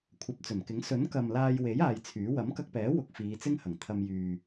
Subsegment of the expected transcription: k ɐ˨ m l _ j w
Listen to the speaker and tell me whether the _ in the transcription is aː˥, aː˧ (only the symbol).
aː˧